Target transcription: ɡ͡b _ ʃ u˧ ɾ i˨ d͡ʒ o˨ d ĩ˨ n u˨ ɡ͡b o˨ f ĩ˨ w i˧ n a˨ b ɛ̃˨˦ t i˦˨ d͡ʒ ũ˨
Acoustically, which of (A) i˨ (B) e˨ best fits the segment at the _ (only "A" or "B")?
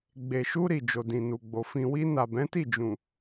B